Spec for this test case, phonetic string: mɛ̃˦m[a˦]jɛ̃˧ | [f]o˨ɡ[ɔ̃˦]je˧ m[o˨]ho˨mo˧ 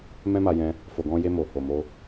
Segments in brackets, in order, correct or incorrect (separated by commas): incorrect, correct, incorrect, correct